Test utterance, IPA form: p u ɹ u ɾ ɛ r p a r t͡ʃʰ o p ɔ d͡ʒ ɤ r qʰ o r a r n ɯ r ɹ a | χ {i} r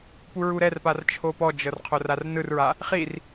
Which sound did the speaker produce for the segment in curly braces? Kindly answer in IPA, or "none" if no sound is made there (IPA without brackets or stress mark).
i